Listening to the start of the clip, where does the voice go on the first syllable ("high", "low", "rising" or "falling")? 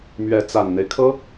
rising